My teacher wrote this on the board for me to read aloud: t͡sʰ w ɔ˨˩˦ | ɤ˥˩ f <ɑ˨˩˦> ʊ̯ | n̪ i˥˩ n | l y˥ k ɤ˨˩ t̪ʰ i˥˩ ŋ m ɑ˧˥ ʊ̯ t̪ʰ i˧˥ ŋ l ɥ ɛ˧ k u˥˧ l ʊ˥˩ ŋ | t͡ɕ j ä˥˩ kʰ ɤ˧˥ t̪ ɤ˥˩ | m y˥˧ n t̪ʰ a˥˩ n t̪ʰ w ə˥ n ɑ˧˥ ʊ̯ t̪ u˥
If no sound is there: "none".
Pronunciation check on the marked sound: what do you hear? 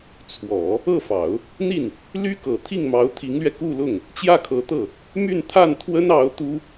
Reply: ɑ˨˩˦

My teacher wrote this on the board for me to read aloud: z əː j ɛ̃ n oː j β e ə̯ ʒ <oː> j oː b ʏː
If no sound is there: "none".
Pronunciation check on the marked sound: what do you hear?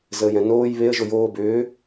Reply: o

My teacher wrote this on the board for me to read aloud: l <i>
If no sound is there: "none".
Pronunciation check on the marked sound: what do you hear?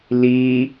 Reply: i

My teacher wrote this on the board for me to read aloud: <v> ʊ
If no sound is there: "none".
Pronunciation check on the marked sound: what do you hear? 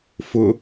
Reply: f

